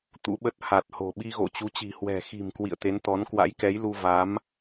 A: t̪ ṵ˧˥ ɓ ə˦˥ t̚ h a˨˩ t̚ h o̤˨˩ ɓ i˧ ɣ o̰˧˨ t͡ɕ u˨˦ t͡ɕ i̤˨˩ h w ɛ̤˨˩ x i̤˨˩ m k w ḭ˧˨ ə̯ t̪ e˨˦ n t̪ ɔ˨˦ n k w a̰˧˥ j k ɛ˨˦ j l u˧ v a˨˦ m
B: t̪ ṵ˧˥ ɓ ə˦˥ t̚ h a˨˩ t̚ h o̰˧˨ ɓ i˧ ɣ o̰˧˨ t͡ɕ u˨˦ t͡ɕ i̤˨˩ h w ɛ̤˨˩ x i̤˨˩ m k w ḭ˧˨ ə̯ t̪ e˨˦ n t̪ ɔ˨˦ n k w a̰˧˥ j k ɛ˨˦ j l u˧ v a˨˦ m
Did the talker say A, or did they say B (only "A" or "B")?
A